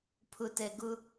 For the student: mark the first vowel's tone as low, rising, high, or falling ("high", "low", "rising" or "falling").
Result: low